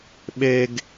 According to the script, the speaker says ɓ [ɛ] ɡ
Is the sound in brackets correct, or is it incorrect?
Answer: incorrect